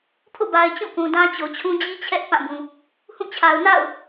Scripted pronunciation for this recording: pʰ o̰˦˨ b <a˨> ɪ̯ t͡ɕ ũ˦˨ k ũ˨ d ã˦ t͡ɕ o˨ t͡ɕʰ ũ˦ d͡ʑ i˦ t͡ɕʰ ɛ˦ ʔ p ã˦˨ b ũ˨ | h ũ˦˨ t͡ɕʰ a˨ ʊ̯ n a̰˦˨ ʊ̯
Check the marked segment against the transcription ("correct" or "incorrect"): correct